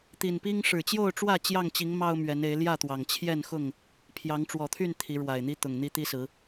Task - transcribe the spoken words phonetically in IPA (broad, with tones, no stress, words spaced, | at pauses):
t̪i˨˩npi˦ŋ ʂɻ̩˨˩t͡ɕjo˥˨ʊ̯ʈ͡ʂwä˥˨ t͡ɕjɑ˥˨ŋt͡ɕi˨˦ŋ mɑ˦ʊ̯ mɥɛ˨˦ne˨˦ɪ̯ ljä˥˨t̪wɑ˨˩ŋt͡ɕʰjɛ˥˨nxʊ˥˨ŋ | pʰjɑ˨˦ŋʈ͡ʂwɔ˨˩t̪ʰy˥˨n t̪ʰi˨˦ɻwa˨˩ɪ̯n̪i˦ t̪ʊ˨˩ŋn̪i˦t̪i˦sɹ̩˨˦